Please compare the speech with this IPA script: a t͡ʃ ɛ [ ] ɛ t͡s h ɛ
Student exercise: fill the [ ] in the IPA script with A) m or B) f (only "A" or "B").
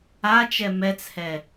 A